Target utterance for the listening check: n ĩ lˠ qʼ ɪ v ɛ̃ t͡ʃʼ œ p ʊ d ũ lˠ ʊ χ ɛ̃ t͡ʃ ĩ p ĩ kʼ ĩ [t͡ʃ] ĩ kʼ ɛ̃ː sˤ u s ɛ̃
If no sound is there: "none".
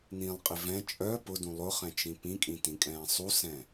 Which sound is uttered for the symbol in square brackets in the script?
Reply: t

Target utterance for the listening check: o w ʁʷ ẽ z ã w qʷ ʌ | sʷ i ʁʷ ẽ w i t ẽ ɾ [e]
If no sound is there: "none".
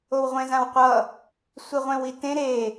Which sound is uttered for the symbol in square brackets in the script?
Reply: e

